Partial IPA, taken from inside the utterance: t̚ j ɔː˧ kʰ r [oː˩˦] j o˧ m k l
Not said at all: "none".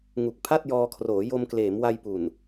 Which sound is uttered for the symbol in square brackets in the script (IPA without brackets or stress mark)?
oː˩˦